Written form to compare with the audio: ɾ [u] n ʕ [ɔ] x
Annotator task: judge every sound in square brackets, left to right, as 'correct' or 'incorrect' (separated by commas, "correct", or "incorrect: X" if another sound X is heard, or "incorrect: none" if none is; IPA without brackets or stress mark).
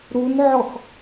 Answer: correct, correct